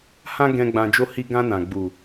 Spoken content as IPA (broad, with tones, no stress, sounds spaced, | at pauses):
h ã˦ ɡ ɛ̃˧ ɡ͡b ã˧ d͡ʒ o˦ h i˦ ɡ ã˧ n ã˨ ɡ͡b u˨